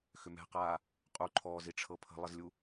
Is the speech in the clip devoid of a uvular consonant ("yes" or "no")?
no